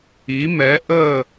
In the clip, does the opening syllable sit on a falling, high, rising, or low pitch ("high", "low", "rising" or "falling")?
rising